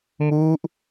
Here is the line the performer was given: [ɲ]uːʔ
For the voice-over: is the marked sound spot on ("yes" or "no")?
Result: no